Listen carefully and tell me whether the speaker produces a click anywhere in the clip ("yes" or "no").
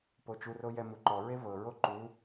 yes